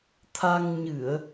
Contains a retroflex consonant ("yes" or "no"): no